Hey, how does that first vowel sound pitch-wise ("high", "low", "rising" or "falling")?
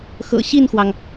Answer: low